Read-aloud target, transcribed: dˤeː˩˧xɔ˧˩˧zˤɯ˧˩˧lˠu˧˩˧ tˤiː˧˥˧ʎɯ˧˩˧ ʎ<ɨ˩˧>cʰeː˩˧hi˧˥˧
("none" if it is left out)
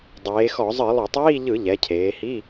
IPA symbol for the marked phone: ɛ˩˧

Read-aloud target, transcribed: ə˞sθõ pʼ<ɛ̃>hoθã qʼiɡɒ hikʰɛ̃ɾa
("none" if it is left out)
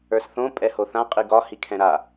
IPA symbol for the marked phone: ɛ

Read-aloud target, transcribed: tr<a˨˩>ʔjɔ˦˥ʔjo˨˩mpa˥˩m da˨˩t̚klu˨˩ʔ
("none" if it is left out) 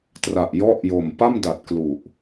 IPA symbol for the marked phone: a˨˩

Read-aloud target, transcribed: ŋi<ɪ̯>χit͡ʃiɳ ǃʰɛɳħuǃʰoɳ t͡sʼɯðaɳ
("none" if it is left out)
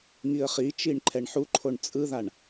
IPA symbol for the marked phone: ə̯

